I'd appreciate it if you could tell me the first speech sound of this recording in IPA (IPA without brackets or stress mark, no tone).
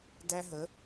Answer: d